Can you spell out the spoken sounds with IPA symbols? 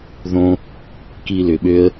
ð õ˦ | k i˧ l ʏ˨ ɓ ø˦ ə̯

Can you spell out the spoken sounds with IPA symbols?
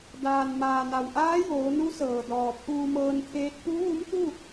d aː˩ n m aː˩ n a˩ w ʔ aː˧˥ j oː˩˧ n u˧˥ s ɤː˩ d ɔː˩ pʰ uː˧ m ɤː˧ n t̪ʰ eː˧˥ t̚ p u˧˥ ʋ u˧˥ m t̪ u˥˨

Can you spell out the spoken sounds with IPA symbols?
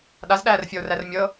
ɗ a z ɗ æː r fʲ ɤ o̯ r æ r mʲ ɤ

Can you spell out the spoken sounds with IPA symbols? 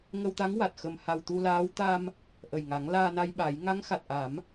ŋ ə˧ w t̪ a˧˥ ŋ w a˨˩ t̚ x ə˨˩ m h a˨˩ w t̪ u˧ l aː˧˥ w t̪ a˧ m | ʔ ə˨˩ j ŋ a˨˩˦ ŋ l aː˧ n a˧ j ɓ a˨˩˦ j ŋ a˧˥ ŋ x a˨˩ t̚ ʔ a˨˩˦ m

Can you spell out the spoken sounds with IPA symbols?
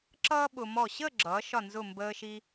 ǁ ʌː˥ ɓ ʊ˧ m ɔ˧˩ ɕ əː˥˧ ɡ͡ǁ ʌː˩˧ ʃ ɒ˧˩ n z ʊ˧˩ m b əː˧ ʃ i˧

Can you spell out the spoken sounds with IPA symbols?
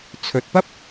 t͡sʰ ɵ˨ t̚ p ɐ˥ p̚

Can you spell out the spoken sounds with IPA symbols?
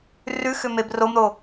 r ʉ x ʏ m e b r o m ɾ o

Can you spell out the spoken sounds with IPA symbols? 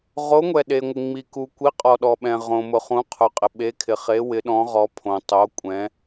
ʁ o˨˥ ŋʷ ɛ˩ ɗ e˩ ŋʷ ɪ˩ ŋ͡m i˩ k u˩ kʷ i˨˥ qʼ ɔ˩ ɗ ɔ˩ ɓ ɛ̃˩ ʁ õ˩ m ʊ˩ χ ũ˨˥ qʰ ʊ˩ qʼ ɪ˩ ɓ e˨˥ kʰ ɪ˩ χ e˨˥ w ɪ˨˥ ɗ ɔ̃˨˥ ʁ ɔ˨˥ pʰ õ˩ tˤ o˨˥ kʷʼ ɛ̃˨˥

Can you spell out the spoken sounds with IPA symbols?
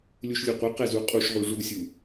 lʲ u ʃ lʲ ɯ qʷ ɛ q ɛ z u qʼ u ʃ ʁ u ʐ u sʲ u

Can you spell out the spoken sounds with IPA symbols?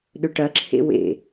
ɗ ɵ ʈ ɐ ǁʰ ḛ w ḛ

